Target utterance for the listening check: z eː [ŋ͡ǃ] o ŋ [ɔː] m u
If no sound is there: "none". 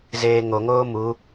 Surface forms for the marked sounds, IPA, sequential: ŋ, oː

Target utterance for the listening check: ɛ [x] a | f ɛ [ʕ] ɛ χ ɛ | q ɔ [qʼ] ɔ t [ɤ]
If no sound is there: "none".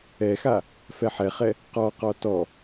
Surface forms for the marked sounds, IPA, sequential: x, ħ, q, ɔ

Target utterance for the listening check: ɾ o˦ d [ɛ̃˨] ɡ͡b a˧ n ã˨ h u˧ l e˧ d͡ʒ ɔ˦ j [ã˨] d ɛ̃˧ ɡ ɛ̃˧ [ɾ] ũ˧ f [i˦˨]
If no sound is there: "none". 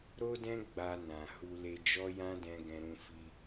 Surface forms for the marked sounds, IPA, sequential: ɛ̃˦, ã˦, ɾ, i˧

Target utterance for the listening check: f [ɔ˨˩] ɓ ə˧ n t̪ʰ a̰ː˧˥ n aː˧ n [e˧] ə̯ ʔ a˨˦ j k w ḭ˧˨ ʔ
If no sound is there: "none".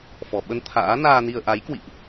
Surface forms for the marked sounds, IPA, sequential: ɔ˨˩, i˧

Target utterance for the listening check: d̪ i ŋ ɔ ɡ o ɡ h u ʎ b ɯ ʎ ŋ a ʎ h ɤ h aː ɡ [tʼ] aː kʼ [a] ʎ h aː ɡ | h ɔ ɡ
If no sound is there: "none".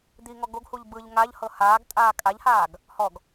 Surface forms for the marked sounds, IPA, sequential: tʼ, a

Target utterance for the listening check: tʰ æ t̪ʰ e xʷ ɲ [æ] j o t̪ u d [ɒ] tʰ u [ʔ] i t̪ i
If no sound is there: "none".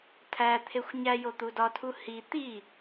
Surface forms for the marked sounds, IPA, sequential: æ, ɒ, h

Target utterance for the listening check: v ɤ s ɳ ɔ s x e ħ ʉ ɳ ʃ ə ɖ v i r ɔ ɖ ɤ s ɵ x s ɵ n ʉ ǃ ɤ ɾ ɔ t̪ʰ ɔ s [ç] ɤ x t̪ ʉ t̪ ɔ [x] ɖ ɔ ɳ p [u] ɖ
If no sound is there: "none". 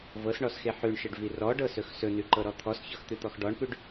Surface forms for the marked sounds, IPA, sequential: ç, x, ʉ

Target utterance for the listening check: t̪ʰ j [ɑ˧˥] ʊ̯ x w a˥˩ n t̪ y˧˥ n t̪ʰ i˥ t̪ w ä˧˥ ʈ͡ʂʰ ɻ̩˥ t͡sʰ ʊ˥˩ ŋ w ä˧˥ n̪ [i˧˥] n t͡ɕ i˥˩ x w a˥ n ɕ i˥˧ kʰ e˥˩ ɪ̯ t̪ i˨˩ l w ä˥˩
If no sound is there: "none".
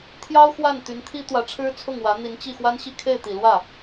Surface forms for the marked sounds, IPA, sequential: ɑ˥, i˧˥

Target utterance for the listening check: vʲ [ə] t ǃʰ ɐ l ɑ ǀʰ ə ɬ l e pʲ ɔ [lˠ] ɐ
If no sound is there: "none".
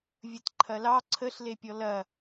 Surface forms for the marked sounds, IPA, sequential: ə, l

